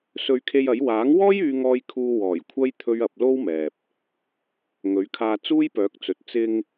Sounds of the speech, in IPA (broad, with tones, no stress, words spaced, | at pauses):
sɵ˧ɥkʰe˧jɐ˨˥j waː˨˥ŋwɔː˥j yː˥ ŋɔː˧j kʰuː˧ wɔː˨˩jkʷʰɐ˥j t̪ʰɵ˥ɥɐ˨˥p̚ lo˥wmɛː˨p̚ | ŋɵ˨˥ɥkʰaː˧ t͡suː˥jpœː˨˥k̚t͡sɵ˨t̚ t͡sɪ˧ŋ